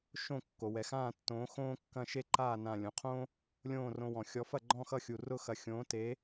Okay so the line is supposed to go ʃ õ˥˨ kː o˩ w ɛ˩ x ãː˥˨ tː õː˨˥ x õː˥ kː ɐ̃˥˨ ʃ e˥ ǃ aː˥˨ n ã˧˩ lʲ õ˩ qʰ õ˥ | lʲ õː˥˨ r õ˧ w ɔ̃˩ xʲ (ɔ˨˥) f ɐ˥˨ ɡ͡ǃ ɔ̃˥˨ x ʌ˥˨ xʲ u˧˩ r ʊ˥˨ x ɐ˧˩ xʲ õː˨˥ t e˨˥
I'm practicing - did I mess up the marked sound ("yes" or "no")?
no